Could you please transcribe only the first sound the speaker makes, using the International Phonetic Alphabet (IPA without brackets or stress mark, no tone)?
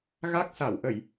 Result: ɣ